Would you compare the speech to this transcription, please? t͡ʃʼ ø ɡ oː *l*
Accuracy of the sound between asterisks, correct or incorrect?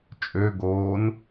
incorrect: n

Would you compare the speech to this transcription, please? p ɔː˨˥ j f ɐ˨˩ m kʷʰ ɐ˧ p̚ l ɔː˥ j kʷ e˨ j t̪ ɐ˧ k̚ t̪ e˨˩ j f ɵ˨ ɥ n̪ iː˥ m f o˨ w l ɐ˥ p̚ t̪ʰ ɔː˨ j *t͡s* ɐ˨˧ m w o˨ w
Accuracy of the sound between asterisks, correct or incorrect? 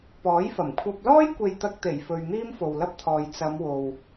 correct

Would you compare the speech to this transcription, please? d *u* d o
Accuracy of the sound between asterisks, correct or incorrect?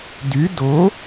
incorrect: y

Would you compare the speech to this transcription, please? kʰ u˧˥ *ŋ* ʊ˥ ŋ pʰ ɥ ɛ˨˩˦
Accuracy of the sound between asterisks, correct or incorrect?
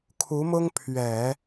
incorrect: m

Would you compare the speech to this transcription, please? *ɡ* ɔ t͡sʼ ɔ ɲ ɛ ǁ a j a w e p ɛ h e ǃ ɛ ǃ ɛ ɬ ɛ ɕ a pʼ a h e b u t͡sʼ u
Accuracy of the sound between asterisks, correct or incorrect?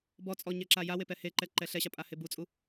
incorrect: b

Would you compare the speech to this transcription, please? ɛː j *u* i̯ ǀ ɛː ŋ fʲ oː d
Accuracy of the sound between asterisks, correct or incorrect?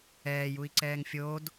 correct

